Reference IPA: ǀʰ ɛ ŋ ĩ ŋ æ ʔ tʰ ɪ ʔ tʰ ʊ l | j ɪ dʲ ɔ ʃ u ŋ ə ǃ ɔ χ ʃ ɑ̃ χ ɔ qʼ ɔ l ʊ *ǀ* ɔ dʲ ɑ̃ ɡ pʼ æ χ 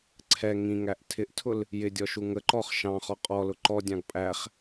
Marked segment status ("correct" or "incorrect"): incorrect